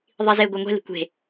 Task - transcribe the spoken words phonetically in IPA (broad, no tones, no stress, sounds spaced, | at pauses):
ðˤ i z e ɡʷ ɤ ŋʷ e̤ l i̤ kʷ e̤